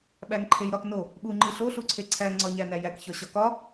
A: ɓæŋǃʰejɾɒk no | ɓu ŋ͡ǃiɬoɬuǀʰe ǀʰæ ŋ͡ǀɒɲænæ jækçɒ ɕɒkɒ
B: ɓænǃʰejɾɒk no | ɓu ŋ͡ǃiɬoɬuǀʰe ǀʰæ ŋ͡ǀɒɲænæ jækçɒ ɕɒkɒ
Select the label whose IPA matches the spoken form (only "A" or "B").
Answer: A